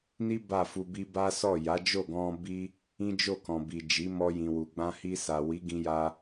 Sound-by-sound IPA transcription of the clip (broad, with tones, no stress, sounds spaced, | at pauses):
n i˦ b a˦˨ f u˧ b i˦ b a˦ s ɔ˦˨ j a˨˦ d͡ʒ o˦˨ ɡ ɔ̃˧ b i˦ | ĩ˦ d͡ʒ o˦˨ k ɔ̃˨ b i˨ d͡ʒ i˨˦ m ɔ˧ j ĩ˨ w u˨ ɡ͡b ã˧ h i˧ s a˨ w i˨˦ ɡ ĩ˧ j a˧